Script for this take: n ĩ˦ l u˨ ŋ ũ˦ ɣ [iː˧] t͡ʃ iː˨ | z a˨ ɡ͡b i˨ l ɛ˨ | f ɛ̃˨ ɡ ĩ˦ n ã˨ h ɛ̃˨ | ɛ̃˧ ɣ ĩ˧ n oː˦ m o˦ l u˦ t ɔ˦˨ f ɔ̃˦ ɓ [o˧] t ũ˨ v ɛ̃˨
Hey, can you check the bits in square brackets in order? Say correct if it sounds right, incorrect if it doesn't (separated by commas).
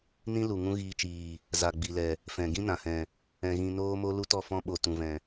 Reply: correct, incorrect